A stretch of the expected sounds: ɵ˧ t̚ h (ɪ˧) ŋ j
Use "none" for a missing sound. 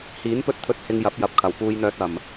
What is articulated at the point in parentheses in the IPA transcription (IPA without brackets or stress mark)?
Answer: ɪ˧